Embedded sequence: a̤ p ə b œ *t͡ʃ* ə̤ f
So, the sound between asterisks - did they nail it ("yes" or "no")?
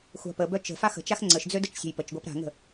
yes